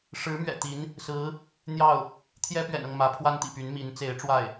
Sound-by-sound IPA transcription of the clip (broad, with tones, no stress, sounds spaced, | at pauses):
ʂ ɻ̩˧˥ m ɥ ɛ̰˨˩ t̪ i˧˥ n | s ɹ̩˧˥ | n̪ j ɑ˥˩ ʊ̯ | t̪ʰ j ɛ˥ p ɥ ɛ̰˨˩ n ɤ˥˩ ŋ m ä˧˥ pʰ w a˥ n t̪ ḭ˨˩ p y˧˥ n m i˧˥ n t͡s e˧˥ ɪ̯ ʈ͡ʂ w a˥˩ ɪ̯